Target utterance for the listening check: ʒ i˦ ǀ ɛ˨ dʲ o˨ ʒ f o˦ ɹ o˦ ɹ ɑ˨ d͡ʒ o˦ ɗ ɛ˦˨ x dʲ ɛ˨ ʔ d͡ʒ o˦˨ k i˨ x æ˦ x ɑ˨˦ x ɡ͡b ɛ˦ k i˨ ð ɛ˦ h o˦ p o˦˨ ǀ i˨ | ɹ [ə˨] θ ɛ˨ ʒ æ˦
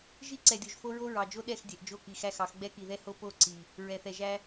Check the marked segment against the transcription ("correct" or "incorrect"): incorrect